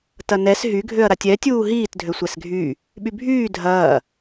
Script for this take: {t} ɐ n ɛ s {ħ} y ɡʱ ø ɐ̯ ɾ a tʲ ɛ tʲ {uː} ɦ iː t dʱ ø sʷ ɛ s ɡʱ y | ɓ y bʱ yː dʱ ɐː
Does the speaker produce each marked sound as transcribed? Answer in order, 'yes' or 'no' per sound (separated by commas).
yes, no, yes